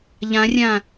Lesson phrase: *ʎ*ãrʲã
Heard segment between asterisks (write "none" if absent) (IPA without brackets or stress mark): ʎ